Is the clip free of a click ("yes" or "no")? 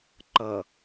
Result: no